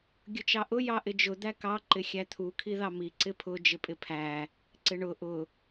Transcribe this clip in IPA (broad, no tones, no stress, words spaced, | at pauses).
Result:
ɡʲʊt͡ʃɑʔʊ jɑʔɪd͡ʒʊ d̪ækɑ ǃɪxʲæt̪ʰu kʰiðɑmi ǀɪpʰʊ d͡ʒɪpʼɪpʰæ | ǀɪɳʊ ʔʊ